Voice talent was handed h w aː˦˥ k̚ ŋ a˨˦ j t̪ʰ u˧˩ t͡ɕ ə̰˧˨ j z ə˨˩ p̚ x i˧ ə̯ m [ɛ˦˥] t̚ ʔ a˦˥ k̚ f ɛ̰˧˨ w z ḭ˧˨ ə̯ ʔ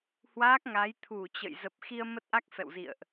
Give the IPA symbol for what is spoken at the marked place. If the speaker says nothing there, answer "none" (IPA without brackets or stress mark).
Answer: ə˦˥